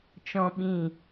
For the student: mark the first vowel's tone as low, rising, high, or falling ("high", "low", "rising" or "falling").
high